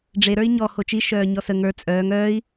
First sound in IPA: ɖ͡ʐ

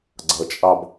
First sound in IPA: ɡ͡ǀ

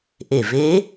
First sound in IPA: ʔ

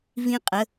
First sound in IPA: v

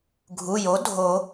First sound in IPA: ɡʱ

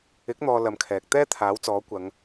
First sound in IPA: ɪ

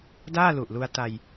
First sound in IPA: d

